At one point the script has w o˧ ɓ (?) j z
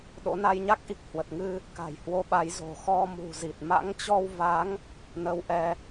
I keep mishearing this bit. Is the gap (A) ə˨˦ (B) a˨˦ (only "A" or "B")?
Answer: B